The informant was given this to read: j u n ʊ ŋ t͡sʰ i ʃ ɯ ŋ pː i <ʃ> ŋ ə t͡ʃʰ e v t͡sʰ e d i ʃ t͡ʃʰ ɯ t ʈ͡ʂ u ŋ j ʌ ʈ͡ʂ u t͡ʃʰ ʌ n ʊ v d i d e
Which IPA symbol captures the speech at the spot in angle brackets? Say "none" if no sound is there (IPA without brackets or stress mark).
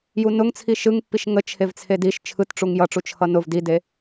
ʃ